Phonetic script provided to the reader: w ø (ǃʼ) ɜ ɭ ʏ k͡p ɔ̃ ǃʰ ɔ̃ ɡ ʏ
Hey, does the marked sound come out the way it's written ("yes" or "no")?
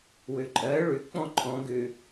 yes